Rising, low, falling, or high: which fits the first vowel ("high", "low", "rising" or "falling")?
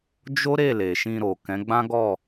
high